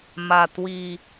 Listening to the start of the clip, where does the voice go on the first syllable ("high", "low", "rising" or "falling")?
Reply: low